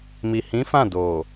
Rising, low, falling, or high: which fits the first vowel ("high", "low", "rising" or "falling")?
low